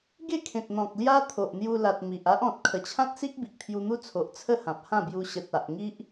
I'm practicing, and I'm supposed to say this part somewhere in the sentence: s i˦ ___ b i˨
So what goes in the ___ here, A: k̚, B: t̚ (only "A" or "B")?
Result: A